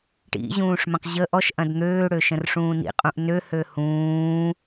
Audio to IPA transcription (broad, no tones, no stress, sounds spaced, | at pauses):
ʈ ḭ ʑ ũː ʂ m ə̃ q ʑ ə ʔ ɔ ʃ ʔ ɐ̃ d n̪ øː ɽ ø ʃ ə̃ r ʂ ũː n ḭ qʼ ũ ʔ n ø h ø h ũː